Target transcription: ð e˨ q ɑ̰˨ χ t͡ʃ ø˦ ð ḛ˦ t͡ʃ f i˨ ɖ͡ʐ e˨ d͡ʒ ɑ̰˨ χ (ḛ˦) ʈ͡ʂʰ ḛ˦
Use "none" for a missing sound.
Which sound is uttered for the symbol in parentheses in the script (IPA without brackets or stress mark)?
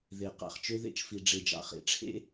ḛ˨